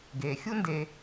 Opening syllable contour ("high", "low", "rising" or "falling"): low